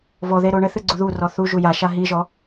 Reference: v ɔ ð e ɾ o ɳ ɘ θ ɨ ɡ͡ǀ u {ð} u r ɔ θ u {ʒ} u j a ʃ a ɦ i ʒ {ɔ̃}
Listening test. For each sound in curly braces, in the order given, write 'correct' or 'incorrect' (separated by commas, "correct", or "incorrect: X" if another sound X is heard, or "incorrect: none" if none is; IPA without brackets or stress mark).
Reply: correct, correct, incorrect: ɔ